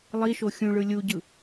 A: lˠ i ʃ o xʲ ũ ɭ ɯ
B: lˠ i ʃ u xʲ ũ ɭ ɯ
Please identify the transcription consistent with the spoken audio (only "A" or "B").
A